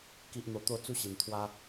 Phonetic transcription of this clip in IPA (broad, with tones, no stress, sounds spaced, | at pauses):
k i˨ ʔ n̪ o˨˩ t̪ o˧ t͡s u˦ ɕ i˨˩ n t̪ʰ w a˦